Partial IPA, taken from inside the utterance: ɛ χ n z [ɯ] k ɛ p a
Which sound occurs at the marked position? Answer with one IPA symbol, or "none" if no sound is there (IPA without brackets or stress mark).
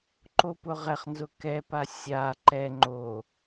ʊ